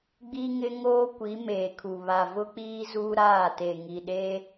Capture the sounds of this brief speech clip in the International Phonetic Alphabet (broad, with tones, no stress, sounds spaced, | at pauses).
ɡ͡b i˦ ŋ ɪ˦ ŋ oː˦ kʷ i˨˦ m eː˨ kʰ u˨ β a˨ v ʊ˦ k͡p iː˦ z uː˦ ɾ aː˦˨ t e˨ ŋ i˨ ɗ e˦